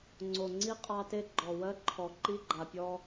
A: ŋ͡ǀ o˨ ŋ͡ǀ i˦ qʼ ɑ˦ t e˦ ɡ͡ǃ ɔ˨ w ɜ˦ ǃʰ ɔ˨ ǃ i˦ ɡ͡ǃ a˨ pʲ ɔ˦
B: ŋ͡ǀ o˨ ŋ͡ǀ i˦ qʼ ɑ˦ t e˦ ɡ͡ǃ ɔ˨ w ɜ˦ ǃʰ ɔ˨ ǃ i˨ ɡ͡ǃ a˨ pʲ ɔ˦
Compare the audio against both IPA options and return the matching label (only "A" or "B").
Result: A